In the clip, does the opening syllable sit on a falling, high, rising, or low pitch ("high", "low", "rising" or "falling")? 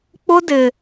high